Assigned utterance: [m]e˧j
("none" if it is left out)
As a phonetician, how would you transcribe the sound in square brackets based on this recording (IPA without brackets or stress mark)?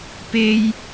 p